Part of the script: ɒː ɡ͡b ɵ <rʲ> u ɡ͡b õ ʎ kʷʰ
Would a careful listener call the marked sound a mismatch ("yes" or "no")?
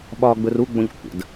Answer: yes